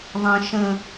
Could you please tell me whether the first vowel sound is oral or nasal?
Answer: nasal